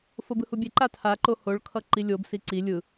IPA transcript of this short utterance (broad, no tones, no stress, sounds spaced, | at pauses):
f o b ɯ h u bʲ e ǃ a tʰ a ǃ o h o ɭ kʰ ʌ ǃ i lʲ o b s i ǀ i lʲ ɯ